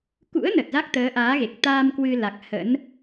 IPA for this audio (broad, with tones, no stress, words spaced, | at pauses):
kṵ˧˥ə̯nə˨˩t̚ za˦˥k̚t̪əː˨˦ʔaː˨˦ɣe˨˩k̚ t̪aː˧m kwɨ˧la˨˩k̚ hə̰˧˥n